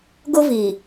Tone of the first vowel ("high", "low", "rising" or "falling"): high